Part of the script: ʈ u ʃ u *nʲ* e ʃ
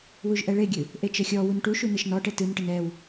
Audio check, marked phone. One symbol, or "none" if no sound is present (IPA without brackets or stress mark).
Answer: n